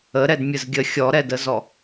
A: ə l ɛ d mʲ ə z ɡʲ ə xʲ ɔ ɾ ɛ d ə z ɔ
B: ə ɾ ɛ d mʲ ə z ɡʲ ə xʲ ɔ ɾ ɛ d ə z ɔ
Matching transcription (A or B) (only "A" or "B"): B